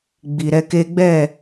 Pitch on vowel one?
low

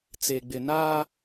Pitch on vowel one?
low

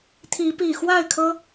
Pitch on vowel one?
rising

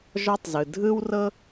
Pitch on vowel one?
high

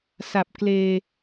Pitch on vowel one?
low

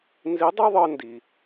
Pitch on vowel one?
rising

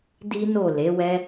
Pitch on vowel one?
high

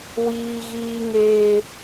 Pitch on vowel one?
high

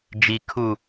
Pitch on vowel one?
low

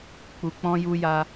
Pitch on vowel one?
low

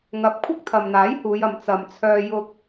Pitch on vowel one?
rising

